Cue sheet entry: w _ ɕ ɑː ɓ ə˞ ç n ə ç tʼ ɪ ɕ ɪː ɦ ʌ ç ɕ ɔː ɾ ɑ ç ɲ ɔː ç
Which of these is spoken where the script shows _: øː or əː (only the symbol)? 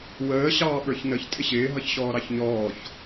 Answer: əː